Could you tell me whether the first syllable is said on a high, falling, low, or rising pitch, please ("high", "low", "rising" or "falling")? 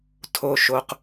low